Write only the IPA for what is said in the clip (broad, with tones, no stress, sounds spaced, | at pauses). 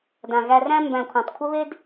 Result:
d ã˨ ɣ æ˧ r æ̃˧ m b æ̃˨ kʷʰ ã˨ tˤ kʷʰ ə˦ β e˦ d